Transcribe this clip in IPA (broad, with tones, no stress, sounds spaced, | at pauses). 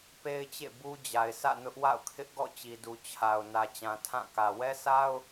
p e˦ ɪ̯ t͡ɕ ḛ˦˨ b u˦ d͡ʑ a˨ ɪ̯ s ä̰˦˨ n ʊ˦ ʔ w a̰˦˨ ʊ̯ kʰ ɪ˦ ʔ ɡ ɔ̰˦˨ t͡ɕ i˨ d u˨ t͡ɕʰ a˨ ʊ̯ n ä˨ t͡ɕ ã˨ tʰ ã˦˨ k ä˨ w ɛ˦ s a˦ ʊ̯